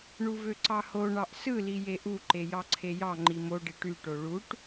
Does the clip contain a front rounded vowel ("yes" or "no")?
yes